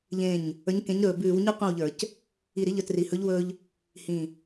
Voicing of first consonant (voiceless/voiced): voiced